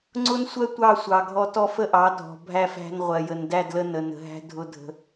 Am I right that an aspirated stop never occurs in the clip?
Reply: yes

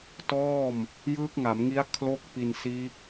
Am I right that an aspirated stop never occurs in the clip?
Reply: no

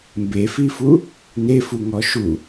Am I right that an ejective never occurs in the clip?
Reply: yes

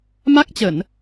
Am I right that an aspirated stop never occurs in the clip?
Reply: yes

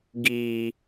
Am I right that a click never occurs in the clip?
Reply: yes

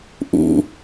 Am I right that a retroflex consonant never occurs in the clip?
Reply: yes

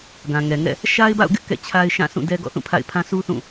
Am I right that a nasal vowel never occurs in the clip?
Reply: no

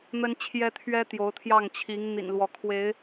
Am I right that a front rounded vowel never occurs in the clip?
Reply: yes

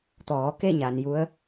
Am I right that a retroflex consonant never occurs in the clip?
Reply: yes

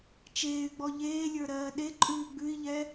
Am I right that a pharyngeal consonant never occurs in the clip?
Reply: yes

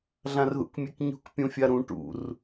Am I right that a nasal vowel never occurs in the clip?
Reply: no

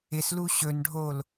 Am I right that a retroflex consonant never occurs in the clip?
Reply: no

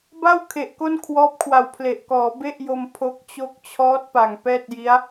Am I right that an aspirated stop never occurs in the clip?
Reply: no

